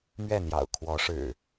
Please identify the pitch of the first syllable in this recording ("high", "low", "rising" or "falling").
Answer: falling